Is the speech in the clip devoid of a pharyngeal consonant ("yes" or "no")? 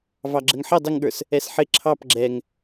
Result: no